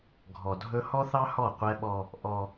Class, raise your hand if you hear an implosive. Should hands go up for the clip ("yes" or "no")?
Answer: yes